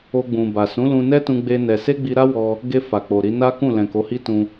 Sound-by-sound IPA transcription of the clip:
o˧ɡ͡bũ˨ba˨ sũ˨˦lũ˧nɛ˦ tũ˦ɡ͡be˦nɛ˧ se˦ɡ͡bi˧ɾa˦wɔ˧ | ɡe˧ fa˨k͡po˨ɾi˨˦ na˦kũ˦˨ lɛ̃˨ko˨˦hi˦tũ˧

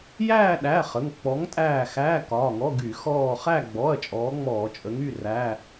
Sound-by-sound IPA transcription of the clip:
jæː˦˨ɗæ˩˧˩ χə˩˧˩ŋk͡pɔ˨˥ŋtʼæː˦˨ xæː˧˥˧kɒː˩˧˩ŋɔ˧˥˧ ɡy˧˩˧xɔː˦˨ χæ˦˨ɡ͡bɔ˩˧˩ɐ̯ t͡ʃʼɔː˨˥ŋ͡mɔː˧˩˧t͡ʃʼə˨˥ŋ y˩˧˩ræː˧˥˧

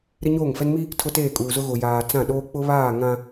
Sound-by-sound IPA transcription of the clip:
ɾɪ˦ɲoː˦˨ŋfɛ˦n mi˦ | tʰʊ˦teː˦˨kʼuː˨zʊ˦ ɣʊ˨jaː˨ t͡sã˦˨ɗoː˦ k͡pʊ˦βaː˦˨ ŋã˦

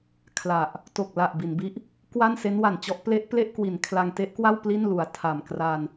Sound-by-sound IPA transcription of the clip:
kʰla˨˩ʔ | to˨˩k̚la˨˩ʔ bi˩˦nbi˦˥ʔ | kwa˥˩n se˦˥nwa˨˩nt͡ɕɔ˦˥ʔ ple˦˥ʔple˥˩ʔ kwi˨˩nkʰla˧ŋte˦˥ʔkwa˥˩w pli˥˩nlu˨˩a̯ tʰa˨˩mkra˧n

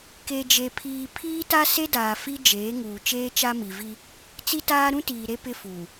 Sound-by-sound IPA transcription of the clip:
ke˨d͡ʒe˨pʰiː˨ pʰiː˦ta˦ se˦daː˨ fi˦d͡ʒeː˨˦ŋuː˨ t͡ʃeː˦t͡ʃa˦mi˨vi˦ | t͡si˦taː˦ ɾũ˦tiː˨ ɾe˦ pɪ˦fuː˨

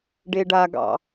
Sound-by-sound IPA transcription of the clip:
ɖeɖaɡɑ̰

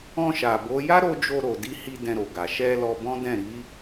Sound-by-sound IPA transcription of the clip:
ɔ̃˧ʃa˨ bo˨˦ ja˦ ɾo˦ d͡ʒo˧ɾo˨di˧hi˧ dɛ̃˧ɾo˨ɡa˨ ʃɛ˧ lɔ˧bɔ̃˦dɛ̃˦˨ ɾi˨˦

